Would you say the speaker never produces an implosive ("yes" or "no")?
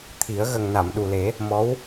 no